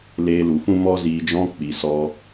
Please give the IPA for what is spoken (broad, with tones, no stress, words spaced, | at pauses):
leː˧lu˨ fũ˦ mɔ˧ziː˨d͡ʒɔ̃˧ k͡pi˨sɔ˧